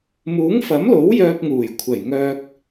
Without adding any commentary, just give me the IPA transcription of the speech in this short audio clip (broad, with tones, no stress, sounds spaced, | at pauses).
m uː˨˥ ŋ f ɐ˨˥ m l o˨˥ w j œː˧ p̚ ŋ uː˨˩ j kʷʰ ɐ˨˩ j ŋ œː˧ k̚